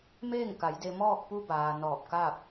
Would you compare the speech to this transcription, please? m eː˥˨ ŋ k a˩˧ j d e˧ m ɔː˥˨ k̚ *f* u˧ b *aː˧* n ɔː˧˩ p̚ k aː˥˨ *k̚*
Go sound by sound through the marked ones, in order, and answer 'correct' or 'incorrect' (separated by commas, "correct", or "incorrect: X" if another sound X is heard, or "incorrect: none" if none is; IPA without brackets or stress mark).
incorrect: p, incorrect: aː˩, incorrect: p̚